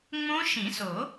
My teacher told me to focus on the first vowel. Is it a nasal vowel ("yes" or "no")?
yes